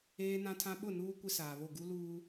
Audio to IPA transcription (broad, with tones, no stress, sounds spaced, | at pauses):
eː˦ n ã˦ tʰ ã˦ ɓ ʊ˦˨ n uː˦ kʷ ɪ˦ s aː˨ β o˦˨ ɡ u˦ l uː˦